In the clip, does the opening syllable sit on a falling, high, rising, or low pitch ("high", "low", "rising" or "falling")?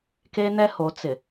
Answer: high